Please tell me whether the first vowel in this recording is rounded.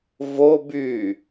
yes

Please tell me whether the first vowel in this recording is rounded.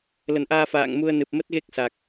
no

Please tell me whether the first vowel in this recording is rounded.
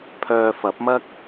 yes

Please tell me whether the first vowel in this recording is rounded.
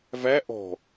no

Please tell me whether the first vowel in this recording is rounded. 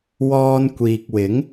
yes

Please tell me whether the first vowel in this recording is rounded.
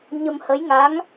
no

